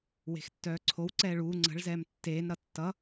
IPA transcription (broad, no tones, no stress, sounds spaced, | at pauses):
w e̤ x tː œː ǀʰ o w ǀ ɛː ɭ uː ŋ͡ǀ ə̤ ɭ z ɛː m tː eː n ɾ ʌ tː ʌ